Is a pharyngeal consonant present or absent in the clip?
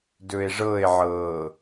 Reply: present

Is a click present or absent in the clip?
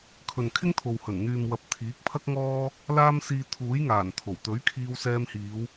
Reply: absent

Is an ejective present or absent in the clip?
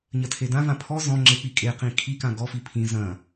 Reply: present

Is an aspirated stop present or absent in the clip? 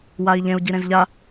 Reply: absent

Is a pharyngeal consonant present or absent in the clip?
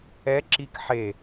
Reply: present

